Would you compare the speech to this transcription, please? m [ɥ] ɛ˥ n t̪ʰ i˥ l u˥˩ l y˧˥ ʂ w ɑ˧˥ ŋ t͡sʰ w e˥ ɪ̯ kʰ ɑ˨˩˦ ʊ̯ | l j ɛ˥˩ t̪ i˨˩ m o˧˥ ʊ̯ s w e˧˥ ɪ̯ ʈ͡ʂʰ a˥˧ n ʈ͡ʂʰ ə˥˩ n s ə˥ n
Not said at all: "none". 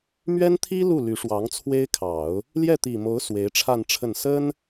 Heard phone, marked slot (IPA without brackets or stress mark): ɥ